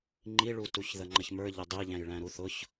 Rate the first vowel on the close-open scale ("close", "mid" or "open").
close